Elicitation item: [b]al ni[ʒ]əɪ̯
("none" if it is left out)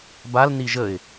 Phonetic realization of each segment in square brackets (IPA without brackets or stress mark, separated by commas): b, ʒ